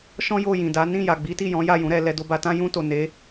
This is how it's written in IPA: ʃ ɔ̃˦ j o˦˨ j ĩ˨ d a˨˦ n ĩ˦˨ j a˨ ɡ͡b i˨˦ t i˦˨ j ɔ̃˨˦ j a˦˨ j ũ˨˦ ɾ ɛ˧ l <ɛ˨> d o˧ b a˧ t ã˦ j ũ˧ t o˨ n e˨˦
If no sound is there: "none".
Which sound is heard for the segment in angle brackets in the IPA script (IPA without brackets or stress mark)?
ɛ˧